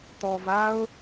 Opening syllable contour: low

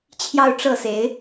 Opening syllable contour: falling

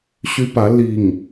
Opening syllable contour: high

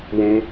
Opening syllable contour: high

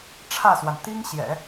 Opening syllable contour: falling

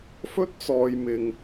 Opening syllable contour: high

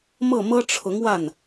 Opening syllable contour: falling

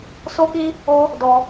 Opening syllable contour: high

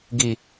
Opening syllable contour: low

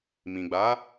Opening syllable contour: low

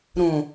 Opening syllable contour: low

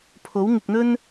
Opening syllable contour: rising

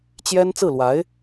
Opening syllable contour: high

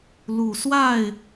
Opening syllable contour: low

